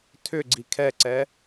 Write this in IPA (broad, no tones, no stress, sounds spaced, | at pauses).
tʰ ʏ ɡ͡ǀ i kʰ ɛ ǀ ɛ